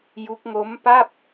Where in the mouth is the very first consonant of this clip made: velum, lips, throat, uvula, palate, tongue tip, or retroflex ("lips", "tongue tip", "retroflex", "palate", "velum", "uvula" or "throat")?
palate